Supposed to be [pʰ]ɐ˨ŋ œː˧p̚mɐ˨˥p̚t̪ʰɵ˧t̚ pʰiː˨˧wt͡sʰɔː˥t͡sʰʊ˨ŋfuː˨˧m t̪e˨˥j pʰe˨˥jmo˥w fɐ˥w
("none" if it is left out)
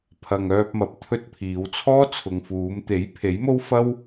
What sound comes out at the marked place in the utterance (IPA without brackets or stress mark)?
pʰ